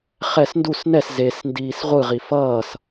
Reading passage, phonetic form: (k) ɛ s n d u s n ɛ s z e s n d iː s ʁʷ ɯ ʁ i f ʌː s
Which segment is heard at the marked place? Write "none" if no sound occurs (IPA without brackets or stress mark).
χ